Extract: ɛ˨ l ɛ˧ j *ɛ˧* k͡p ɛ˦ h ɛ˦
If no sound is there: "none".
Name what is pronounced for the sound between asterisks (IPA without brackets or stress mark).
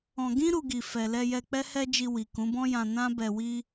ɛ˧